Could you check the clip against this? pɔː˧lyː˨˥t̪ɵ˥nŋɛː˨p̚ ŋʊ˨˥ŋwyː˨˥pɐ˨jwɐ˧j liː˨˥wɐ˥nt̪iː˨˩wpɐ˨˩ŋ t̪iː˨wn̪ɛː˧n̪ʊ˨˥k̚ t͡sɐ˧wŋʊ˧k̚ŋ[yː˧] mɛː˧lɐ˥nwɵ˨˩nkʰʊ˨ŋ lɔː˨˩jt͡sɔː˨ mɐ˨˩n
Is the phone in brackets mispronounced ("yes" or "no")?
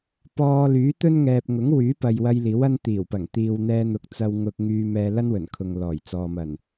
no